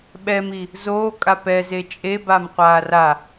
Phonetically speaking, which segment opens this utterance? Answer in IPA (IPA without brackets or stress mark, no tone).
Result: ɓ